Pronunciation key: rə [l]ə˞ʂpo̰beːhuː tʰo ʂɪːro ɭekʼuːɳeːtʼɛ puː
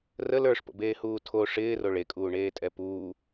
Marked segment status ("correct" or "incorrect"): correct